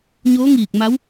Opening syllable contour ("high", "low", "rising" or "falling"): rising